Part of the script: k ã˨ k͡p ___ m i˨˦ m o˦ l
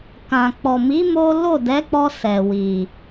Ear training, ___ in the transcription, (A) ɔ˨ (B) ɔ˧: A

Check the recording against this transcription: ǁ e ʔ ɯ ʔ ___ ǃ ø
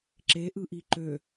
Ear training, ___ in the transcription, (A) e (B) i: B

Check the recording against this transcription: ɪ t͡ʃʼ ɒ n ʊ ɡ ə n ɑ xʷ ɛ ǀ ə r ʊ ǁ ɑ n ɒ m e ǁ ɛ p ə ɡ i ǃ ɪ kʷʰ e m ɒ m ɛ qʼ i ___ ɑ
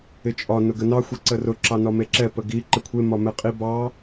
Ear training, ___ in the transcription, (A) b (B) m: A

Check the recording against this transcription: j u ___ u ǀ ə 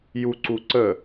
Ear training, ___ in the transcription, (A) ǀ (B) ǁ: A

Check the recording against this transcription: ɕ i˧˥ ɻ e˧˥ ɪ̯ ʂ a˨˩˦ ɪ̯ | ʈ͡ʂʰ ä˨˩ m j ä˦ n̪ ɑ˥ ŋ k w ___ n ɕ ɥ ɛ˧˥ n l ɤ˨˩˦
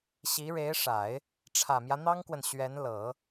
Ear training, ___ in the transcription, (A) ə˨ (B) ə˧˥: A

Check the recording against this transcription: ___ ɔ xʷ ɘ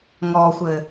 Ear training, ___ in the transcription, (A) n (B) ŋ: B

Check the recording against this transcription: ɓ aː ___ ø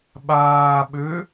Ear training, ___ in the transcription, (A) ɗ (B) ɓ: B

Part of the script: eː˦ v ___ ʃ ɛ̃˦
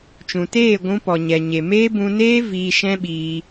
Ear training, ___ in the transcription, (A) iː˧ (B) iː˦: A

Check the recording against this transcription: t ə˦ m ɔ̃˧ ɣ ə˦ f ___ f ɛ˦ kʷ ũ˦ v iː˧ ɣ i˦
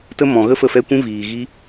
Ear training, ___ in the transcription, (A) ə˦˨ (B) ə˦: A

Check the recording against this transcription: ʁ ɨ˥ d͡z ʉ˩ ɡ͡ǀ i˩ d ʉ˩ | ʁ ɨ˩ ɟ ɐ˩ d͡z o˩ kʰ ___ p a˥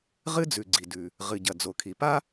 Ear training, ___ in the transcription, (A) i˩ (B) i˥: A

